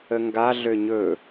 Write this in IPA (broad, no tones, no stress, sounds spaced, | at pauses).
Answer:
ə ŋ ɡ a ɮ ø ɲ ɵ